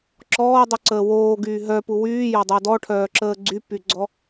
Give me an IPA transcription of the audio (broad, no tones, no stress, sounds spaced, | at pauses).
ǁ ɔː dˤ y ǀ əː w oː ɡ yː ɦ œ p u w yː j ɔ dˤ o d ɔ ʈʰ œː ǁ əː ɡ͡ǀ y p y ɡ͡ǀ ɔ